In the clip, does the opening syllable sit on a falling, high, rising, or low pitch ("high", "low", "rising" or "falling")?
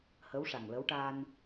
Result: rising